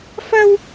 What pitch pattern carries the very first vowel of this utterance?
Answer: high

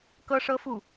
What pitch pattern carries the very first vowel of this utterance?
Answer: high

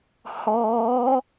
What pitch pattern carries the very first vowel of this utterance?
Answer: rising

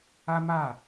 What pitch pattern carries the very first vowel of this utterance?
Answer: high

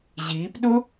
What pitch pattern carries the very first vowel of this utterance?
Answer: rising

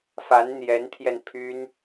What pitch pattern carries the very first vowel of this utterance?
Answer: rising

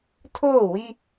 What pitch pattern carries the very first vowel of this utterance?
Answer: falling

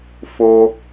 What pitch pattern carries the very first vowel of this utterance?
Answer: high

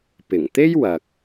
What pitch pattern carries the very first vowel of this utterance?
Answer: low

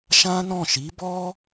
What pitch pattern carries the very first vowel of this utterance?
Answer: high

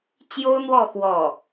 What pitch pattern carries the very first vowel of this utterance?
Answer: high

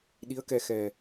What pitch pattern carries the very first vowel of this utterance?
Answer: rising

